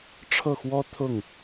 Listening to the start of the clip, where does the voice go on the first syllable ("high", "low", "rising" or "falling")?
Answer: falling